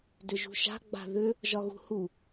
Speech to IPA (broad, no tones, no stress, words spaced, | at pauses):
dʏʒṳʃa̤ ɡ͡ba̤ðʏ | ʒɒɣṳhu